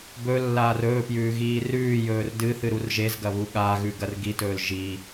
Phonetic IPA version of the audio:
b ɵ lː aː r ɵː p j ʉː ɣ iː r ʉː j ɵː r d ɨ θ ɨ ɾ u r ʒ e z ɡ ɐ β u ɠ a ɣ ʉ ɡ ɐ r ɡ i t ɵː l ʒ i

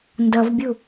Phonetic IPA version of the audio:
n d ʌ v bʲ u

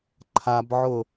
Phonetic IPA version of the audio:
ǃʰ a b ʕ ʊ

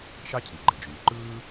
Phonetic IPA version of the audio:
ʃ ɑ˥ cʰ i˩ ɡ͡ǃ e˩ d͡ʒ yː˩ ǃ ɯː˥

